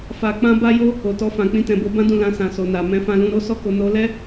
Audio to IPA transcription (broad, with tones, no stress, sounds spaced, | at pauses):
f a˧ k͡p ã˦ b a˦ j o˦ | o˨ t ɔ˧ f ã˨ k͡p ĩ˧ t ɛ̃˨ b o˧ b ã˦ d ũ˦˨ l ã˧ s ã˨ s o˨ n a˨ m ɛ̃˧ f ã˧ l ũ˧ ɾ o˦ s ɔ˦ k o˧ n o˧ l ɛ˦